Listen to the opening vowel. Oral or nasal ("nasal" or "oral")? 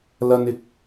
oral